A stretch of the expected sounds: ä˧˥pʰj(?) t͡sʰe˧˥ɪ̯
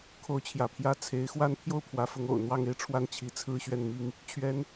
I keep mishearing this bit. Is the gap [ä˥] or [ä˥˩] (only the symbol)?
ä˥